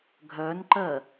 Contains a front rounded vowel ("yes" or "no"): yes